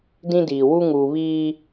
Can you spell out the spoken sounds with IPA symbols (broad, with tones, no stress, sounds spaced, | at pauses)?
d ĩ˦ d iː˨ w u˦ ŋ uː˨ β iː˦